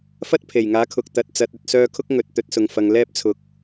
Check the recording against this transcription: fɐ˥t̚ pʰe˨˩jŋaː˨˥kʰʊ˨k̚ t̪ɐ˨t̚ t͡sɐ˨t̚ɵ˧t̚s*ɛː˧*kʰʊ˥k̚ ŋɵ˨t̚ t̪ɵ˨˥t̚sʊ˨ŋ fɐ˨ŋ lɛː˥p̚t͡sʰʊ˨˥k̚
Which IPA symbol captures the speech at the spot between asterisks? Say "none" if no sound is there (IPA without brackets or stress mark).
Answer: œː˧